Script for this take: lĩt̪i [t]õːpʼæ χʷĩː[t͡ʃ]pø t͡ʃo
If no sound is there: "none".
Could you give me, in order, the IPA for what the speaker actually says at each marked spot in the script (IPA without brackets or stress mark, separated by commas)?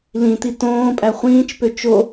t, t͡ʃ